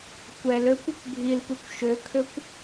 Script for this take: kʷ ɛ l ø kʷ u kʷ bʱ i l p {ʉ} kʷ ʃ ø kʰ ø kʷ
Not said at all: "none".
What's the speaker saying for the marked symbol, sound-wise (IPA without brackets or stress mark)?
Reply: ʉ